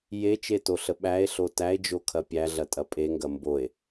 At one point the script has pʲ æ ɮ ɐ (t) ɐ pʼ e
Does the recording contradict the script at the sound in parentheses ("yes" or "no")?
yes